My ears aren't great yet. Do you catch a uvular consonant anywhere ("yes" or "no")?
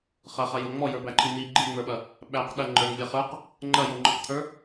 yes